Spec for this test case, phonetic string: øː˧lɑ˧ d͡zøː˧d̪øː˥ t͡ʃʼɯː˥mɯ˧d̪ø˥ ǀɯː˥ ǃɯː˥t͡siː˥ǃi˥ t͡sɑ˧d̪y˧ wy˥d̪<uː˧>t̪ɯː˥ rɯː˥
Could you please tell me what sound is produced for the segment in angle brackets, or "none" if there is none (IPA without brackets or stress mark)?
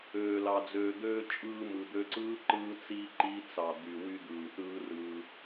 ɯː˧